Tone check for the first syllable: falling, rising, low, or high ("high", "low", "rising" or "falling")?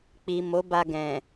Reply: low